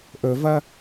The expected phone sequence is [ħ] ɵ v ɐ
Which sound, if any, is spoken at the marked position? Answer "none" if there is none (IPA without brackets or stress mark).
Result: ʔ